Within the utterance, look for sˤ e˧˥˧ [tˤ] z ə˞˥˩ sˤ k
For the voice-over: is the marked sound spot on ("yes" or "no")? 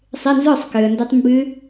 no